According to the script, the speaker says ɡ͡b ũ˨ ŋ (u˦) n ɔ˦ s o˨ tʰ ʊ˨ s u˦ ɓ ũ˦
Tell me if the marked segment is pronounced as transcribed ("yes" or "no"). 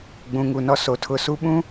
no